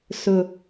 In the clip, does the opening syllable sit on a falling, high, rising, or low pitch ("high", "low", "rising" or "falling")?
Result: low